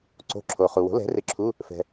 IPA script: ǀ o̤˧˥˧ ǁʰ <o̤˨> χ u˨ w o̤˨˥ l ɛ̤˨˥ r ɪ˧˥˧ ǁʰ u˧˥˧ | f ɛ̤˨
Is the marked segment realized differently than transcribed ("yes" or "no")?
yes